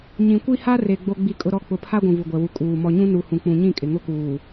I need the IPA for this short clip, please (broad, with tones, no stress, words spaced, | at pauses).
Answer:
ɲĩ˨kʷi˦ha˦re˨ ɡ͡bo˦ɡ͡bi˦kʼʊ˦ɾɔ˦ k͡pʊ˨pʰa˦ ɡʷũ˨vu˨ɡʷɛ˨wu˨ kʼuː˨ mɔ˨ɲũ˦nu˨ hũ˨k͡pũ˨ ɲĩ˦˨kʼɪ˨ ŋʊ˦kuː˨